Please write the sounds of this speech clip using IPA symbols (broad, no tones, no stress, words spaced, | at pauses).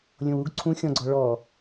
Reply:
lʲõwuɡ ǀʰũ xʲɔ̃ɡ͡ǀɔ ɭɔ